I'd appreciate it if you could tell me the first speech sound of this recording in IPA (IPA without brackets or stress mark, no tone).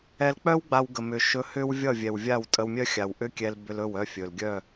ɛ